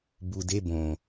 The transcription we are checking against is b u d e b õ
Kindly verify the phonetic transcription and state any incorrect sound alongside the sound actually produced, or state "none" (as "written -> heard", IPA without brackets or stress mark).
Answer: none